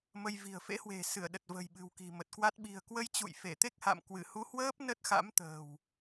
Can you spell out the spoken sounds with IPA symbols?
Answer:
m ə˧ j v i̤˨˩ ə̯ f ḛ˧˥ h w e̤˨˩ s ɨ˧˩ ə̯ ɗ ə˨˩ t̚ v ə̤˨˩ j ɓ ɨ̤˨˩ w k i̤˨˩ m ə˨˩ t̚ k w a˦˥ t̚ ɓ i̤˨˩ ə̯ k w ə˧ j t͡ɕ ṵ˧˨ j f e˧˩ t̪ e˦˥ k̚ h a̰˧˨ m k w ɨ˧˩ h u˨˦ h w əː˦˥ p̚ n ə˦˥ t̚ x a̰˧˥ m t̪ ə̤ː˨˩ w

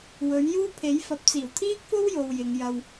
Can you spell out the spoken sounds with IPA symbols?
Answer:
w ɵ˨˥ ɥ j uː˥ pʰ e˨˥ j f ɐ˨˥ p̚ t͡s iː˨˩ w t̪ʰ iː˥ k̚ f o˥ w j o˨ w j ɪ˨˧ ŋ j ɐ˧ w

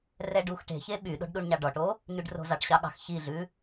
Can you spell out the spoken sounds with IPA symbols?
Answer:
r ɛ ɖ u x ʈ e̤ ç e ɓ y ɗ o̤ ɖ ɗ u ɳ ɲ ɑ ɖ ɔ ʈ o | ɲ ʉ ɖ r o̤ z ɑ ʈ ɕ ɑ ɠ ɑ̤ x ç i ɮ ʉ

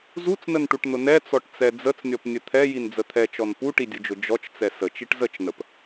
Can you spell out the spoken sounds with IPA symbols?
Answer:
z u t͡s n ə n ʈ u ʈ n̪ ʊ n ɛ t͡s ɔ ʈ t͡s ɛ d͡z ə t͡s nʲ ɔ p nʲ ə t̪ʰ ɛ j i n d͡z ə t̪ʰ ɛ t͡ʃ ɔ n p u ʈ i dʲ ʊ d͡ʒ ʊ d͡ʒ ɔ t͡ʃ t͡s ɛ s ə t͡ʃ i ʈ z ə t͡ʃ n ə p

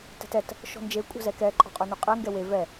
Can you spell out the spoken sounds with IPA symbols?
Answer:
t ɛ̤ t ɛ t | ʃ ɔ̤ n d͡ʒ e kʷʼ ɛ̤ z ɛ k ɛ ǃʼ ɔ̤ qʼ œ n ɵ qʼ ɛ ŋ ɡ ɛ w e v ɛ

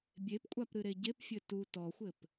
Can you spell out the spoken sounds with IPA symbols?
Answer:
bʲ e p kʷʼ a p ɾ ɨ ɾ e ɟ e p fʲ ɘ t u t ɔ xʷ ɘ p

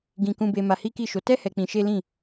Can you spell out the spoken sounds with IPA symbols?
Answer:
ɡ ĩ˧ k ũ˧ b e˧ m a˧ h i˦ k i˦˨ ʃ o˧ t ɛ˦ h ɛ˧ k͡p ĩ˧ ʃ e˦ l ĩ˦˨

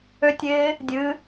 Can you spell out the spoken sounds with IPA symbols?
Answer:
ø tʲ ɪː | dʲ ɨ

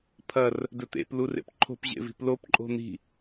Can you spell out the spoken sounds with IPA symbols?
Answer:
pʰ ɐ r | d ɵ t̪ ḛ p l u r ḛ p ǃʰ o̤ p ʑ ḛ v i̤ p l o p ǃʼ o̤ n̪ i̤

